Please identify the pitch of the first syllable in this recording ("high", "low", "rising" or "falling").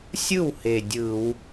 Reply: falling